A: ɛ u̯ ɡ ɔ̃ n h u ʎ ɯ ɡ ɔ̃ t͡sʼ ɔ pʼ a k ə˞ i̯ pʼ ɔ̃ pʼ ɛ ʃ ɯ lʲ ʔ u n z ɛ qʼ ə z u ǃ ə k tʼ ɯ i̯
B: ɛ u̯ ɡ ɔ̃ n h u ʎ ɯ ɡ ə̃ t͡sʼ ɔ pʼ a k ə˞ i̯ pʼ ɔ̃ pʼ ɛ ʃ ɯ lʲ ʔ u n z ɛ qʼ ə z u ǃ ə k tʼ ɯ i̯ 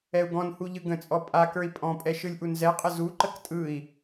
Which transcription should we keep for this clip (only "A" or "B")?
B